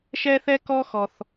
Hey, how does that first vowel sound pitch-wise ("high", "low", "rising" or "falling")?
high